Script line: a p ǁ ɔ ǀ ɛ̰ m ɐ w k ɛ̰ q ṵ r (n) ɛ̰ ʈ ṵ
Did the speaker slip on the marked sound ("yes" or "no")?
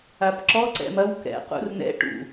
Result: no